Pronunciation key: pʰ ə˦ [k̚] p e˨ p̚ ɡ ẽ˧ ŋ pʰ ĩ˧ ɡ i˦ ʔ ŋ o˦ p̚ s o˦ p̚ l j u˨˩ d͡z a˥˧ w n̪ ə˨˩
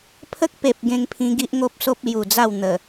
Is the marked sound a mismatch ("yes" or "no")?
no